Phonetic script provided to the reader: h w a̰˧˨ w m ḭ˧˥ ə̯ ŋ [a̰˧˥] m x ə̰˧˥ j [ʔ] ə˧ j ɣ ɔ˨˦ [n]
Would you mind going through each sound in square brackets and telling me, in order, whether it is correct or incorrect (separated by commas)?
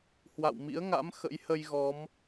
correct, incorrect, incorrect